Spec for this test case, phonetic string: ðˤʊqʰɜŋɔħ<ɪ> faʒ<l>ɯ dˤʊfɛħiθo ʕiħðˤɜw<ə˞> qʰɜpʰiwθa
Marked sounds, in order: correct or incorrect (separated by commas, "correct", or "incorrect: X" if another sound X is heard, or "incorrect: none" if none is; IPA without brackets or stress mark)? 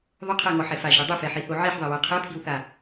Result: incorrect: ɛ, incorrect: ɽ, incorrect: ɜ